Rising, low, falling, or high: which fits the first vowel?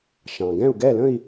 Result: low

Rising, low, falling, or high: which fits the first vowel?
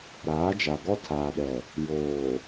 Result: rising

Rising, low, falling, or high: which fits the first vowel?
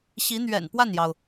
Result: rising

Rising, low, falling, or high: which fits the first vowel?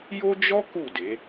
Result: high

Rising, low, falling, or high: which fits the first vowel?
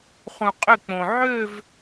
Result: low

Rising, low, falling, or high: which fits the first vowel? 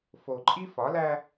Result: low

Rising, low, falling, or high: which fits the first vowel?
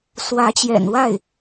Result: rising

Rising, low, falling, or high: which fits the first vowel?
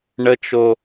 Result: high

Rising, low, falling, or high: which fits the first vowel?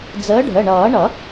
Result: rising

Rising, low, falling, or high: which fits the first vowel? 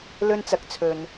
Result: high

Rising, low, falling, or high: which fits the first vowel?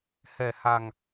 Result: low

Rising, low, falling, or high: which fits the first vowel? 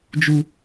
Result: high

